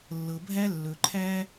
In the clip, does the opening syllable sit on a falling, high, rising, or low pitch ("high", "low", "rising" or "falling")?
low